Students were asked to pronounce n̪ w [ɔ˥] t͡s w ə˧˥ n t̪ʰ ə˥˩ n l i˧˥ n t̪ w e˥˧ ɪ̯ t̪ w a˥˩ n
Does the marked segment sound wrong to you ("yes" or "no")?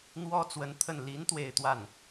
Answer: no